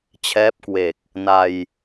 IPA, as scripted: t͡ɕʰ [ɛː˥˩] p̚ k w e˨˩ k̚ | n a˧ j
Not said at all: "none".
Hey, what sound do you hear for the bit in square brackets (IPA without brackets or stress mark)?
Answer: ɛː˦˥